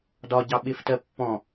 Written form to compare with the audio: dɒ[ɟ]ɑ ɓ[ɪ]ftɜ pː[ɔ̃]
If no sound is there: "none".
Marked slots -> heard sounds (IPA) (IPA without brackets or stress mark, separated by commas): ɟ, ɪ, ɔ̃